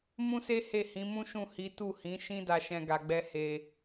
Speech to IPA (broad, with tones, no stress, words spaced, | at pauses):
mũ˦se˦ he˦˨hĩ˨˦mũ˦ʃũ˦˨ hi˨˦ tu˦˨hĩ˨˦ ʃĩ˦da˧ʃɛ̃˧ ɡa˧ɡ͡bɛ˦ he˧